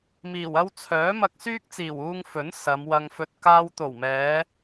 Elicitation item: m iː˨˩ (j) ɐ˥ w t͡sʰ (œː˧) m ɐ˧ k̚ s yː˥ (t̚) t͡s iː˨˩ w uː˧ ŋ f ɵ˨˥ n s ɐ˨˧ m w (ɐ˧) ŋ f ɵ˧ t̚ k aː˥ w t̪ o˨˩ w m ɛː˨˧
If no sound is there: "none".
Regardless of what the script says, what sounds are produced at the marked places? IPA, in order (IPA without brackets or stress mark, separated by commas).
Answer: w, œː˨˥, k̚, ɐ˧